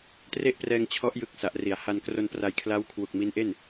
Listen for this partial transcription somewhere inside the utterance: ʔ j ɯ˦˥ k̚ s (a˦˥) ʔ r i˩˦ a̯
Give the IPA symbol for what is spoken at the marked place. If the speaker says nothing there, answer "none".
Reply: a˨˩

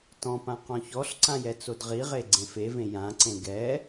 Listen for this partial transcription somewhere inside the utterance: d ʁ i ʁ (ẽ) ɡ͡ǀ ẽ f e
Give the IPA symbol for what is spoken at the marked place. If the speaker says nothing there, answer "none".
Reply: e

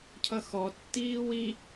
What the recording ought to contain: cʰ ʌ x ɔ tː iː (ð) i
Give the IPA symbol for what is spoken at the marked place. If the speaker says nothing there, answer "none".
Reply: w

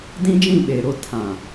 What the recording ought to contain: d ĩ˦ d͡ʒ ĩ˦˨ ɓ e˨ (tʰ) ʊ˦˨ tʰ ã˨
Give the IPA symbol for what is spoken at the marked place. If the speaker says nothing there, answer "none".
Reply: ɾ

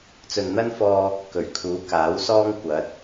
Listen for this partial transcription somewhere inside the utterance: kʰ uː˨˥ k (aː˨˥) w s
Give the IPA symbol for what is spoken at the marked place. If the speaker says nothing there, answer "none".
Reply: aː˨˥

